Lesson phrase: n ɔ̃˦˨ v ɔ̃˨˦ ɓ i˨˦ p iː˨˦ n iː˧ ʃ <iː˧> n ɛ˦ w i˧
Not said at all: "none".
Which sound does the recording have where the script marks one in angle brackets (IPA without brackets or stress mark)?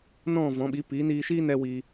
iː˦